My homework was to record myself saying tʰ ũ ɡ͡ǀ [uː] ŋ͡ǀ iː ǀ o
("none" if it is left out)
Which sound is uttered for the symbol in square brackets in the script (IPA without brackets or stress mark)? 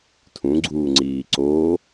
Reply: uː